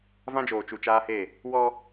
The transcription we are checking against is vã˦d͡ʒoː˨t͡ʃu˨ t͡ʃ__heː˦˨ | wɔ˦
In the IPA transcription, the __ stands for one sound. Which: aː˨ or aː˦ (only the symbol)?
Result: aː˦